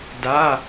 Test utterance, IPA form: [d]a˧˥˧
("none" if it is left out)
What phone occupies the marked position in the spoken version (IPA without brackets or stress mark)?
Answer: d